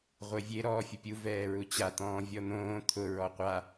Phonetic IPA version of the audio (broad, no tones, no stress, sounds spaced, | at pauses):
ʁʷ e vʲ e ɾ ɔː fʲ ʊ pʲ u v ɛː ɹ u t͡ɕ a t̪ ɔ̃ː vʲ ɔ n̪ õː t̪ʰ ʊ ɹ ɔ qʷ a